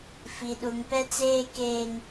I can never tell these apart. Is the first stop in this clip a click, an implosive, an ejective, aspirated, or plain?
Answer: implosive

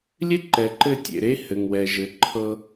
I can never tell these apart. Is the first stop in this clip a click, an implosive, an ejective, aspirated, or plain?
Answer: click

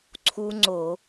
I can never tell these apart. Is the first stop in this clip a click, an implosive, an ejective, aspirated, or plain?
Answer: click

